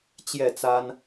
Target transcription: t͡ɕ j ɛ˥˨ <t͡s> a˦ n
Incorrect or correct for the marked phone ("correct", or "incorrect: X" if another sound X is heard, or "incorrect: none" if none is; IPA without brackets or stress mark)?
correct